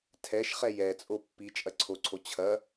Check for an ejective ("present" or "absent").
present